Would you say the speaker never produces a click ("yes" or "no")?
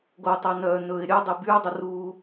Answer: yes